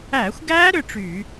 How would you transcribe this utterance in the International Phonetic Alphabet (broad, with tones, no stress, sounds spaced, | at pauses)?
æ˧˩˧ xʷ ɡ æ˦˥ ɾ ʏ˩˧˩ ʈ͡ʂ y˧˩˧